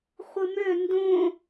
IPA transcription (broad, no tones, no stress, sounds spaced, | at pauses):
χʷ ɯ m ø n d õ